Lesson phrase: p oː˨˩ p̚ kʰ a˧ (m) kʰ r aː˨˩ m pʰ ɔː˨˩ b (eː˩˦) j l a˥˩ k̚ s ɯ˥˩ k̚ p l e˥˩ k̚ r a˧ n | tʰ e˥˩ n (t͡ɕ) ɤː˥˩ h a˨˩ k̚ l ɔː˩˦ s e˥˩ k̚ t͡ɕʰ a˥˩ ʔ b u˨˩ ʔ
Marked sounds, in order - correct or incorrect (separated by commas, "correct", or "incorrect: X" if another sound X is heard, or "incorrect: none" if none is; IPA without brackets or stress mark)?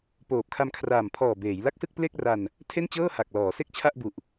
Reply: correct, correct, correct